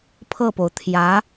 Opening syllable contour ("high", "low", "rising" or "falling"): falling